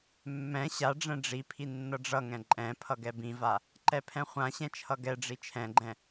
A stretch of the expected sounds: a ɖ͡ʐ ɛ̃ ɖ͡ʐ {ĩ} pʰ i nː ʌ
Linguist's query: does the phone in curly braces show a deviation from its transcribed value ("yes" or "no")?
yes